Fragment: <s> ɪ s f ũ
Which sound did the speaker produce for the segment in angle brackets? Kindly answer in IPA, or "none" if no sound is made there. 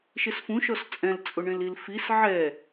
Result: ʃ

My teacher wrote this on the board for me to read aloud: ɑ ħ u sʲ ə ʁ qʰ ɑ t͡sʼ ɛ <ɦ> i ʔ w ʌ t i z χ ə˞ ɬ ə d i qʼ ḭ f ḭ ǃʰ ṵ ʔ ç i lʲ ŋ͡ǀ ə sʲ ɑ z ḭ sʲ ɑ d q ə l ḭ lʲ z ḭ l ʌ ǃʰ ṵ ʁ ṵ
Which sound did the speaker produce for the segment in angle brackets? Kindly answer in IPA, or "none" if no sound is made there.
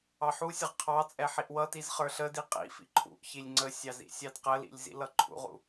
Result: ħ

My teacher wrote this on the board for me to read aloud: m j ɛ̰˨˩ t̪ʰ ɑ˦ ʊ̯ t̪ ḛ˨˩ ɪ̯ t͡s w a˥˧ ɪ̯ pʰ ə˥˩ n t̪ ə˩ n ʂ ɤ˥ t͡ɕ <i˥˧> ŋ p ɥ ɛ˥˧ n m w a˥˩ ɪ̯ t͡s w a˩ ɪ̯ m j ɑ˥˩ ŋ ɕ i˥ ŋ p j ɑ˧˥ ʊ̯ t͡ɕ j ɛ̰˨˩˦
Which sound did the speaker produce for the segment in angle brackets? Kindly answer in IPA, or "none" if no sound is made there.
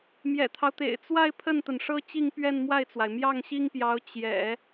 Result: i˥˧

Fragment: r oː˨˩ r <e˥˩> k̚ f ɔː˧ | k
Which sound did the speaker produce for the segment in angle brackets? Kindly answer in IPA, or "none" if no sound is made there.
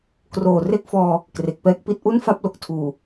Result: e˦˥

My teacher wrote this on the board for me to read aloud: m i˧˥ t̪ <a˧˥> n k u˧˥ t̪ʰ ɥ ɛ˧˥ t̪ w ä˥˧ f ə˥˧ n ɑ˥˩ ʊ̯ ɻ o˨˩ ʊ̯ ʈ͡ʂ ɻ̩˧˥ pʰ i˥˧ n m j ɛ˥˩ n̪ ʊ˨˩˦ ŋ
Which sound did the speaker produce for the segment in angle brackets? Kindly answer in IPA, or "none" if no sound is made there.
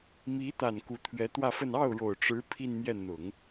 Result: a˨˩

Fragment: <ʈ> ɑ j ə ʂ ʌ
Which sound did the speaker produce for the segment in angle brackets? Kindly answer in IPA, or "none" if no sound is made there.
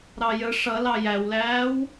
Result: ɾ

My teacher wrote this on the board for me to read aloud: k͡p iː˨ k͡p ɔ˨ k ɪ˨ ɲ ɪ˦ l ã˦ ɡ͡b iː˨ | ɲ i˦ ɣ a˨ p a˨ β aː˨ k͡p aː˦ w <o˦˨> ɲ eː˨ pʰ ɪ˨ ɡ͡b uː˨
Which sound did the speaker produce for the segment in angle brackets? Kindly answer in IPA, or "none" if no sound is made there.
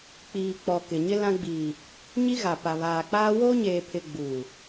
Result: o˦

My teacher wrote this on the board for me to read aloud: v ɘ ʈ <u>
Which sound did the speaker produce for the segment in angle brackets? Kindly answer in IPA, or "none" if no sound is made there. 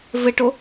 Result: o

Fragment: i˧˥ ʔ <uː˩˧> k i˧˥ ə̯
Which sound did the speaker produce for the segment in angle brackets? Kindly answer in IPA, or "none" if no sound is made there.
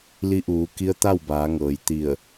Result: uː˩˧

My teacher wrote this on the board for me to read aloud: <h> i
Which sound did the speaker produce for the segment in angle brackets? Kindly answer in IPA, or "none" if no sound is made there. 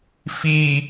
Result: f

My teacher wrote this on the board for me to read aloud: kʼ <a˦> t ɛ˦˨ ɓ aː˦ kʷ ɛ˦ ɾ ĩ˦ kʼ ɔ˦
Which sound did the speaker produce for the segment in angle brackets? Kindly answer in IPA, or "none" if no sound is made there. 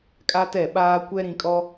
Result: a˦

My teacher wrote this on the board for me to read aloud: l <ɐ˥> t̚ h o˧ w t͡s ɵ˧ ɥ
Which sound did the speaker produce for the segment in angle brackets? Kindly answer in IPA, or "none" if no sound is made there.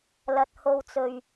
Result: ɐ˨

